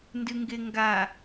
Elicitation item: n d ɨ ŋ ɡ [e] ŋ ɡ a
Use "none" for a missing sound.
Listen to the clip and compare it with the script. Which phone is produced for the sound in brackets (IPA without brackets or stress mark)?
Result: e